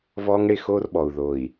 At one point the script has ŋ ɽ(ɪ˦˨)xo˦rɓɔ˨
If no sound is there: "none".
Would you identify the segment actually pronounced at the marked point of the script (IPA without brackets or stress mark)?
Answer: ɪ˦˨